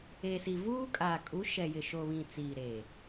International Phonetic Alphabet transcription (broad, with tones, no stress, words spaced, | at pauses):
e˨si˨ vuː˦ kʼaː˨kʼu˨˦ ʃɛ˨jɪ˨ʃo˨βĩ˨ t͡siː˨ɾeː˨